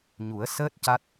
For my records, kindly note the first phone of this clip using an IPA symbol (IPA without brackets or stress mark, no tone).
ɲ